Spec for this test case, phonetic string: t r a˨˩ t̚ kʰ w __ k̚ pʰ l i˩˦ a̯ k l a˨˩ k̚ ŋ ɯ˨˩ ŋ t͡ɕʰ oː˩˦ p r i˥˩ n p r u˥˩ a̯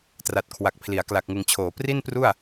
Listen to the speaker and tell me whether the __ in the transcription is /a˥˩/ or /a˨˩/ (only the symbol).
a˨˩